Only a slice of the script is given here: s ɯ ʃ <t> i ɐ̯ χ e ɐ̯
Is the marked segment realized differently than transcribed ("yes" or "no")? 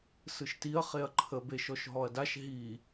no